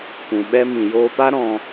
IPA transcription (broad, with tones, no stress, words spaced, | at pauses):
kʷũ˨ɓɛ˦ mĩ˨joː˧pa˦ ɾɔ̃˧